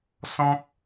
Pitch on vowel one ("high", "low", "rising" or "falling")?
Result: high